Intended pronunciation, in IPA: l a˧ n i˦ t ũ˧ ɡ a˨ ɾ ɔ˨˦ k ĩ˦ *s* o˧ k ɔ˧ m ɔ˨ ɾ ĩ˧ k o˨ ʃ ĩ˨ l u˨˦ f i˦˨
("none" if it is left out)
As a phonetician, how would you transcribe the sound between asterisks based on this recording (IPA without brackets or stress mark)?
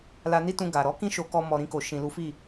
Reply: ʃ